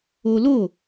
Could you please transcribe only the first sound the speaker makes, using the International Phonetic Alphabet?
o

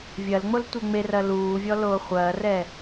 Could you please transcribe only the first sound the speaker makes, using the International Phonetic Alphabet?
vʲ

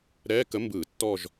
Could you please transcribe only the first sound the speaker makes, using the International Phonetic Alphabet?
ɾ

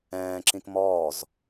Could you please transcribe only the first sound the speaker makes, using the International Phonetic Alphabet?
ɛ̃ː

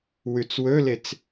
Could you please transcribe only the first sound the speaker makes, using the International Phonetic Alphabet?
w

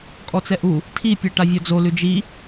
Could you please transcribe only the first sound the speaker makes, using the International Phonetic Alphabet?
kʼ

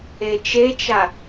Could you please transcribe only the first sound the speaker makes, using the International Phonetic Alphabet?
e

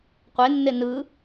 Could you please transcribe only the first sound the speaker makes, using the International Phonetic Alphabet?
qʷ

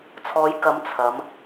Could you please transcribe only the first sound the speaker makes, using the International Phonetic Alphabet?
t͡sʰ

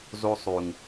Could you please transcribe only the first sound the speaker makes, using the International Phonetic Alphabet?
z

